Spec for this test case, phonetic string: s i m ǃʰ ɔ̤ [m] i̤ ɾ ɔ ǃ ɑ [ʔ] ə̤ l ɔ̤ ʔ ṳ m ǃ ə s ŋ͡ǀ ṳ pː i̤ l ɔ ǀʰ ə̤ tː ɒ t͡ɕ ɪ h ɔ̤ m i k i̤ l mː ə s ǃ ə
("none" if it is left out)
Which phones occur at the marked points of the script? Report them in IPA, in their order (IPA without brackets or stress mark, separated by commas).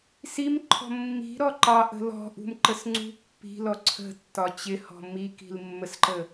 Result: mː, ʔ